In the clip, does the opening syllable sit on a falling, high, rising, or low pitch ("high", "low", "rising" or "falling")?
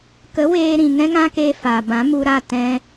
rising